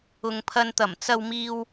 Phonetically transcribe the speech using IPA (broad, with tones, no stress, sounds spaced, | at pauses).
ʊ˨ ŋ pʰ ɐ˧ n t̪ ɐ˨˩ m t͡s ɐ˧ w m iː˧ w